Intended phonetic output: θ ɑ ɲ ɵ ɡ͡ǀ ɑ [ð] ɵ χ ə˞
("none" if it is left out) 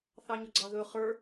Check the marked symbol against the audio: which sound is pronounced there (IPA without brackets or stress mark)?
ð